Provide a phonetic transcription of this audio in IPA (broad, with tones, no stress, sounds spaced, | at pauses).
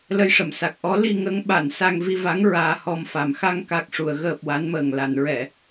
l ə˧ j ʂ ə˨˩˨ m s a˨˩ k̚ ʔ ɔ˧˥ l i˧ ŋ ə˧˥ ŋ ɓ a˨˩˨ n s a˧ ŋ v i˧ v a˧˥ ŋ ɹ aː˧ h ɔ˧ m f a˨˩ m x a˧ ŋ k a˨˩ k̚ ʂ u˨˩˨ ə̯ ɣ əː˨˩ p̚ w a˧˥ n m əː˨˩ ŋ l a˨˩˨ n ɹ ɛ˨˩˨